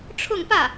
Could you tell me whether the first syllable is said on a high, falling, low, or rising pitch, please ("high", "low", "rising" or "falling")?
falling